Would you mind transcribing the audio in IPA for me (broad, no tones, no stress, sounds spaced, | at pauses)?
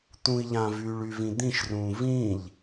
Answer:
t̪ ũ i̯ ʎ ã v yː ɭ y v ĩ d̪ ĩ ʃ r ũː v ĩː ʎ